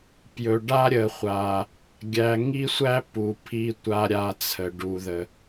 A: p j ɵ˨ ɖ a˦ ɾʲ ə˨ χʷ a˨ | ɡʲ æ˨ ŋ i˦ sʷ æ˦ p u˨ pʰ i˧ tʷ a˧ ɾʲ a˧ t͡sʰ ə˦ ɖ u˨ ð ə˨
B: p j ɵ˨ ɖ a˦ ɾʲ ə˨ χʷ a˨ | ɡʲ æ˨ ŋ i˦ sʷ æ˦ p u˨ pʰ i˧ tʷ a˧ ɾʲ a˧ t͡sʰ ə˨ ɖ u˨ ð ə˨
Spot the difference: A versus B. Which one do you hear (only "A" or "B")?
B